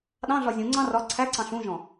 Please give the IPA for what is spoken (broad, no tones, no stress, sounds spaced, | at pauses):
ɗ ɑ̃ ɮ ɒ zʲ ũ ŋ͡ǀ ɑ̃ r ɒ ǀʰ æ ǀ ɑ̃ ɬ ũ ʒ ɔ̃